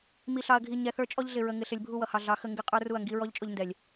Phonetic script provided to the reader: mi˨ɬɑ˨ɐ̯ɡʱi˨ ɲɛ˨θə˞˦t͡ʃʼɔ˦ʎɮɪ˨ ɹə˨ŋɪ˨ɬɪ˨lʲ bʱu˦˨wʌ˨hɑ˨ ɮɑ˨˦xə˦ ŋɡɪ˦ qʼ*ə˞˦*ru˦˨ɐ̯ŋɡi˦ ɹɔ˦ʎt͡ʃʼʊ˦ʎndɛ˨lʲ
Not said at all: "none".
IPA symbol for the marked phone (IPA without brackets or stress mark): ə˞˦